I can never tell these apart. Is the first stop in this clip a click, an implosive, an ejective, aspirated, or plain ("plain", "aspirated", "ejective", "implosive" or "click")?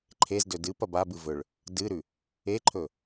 click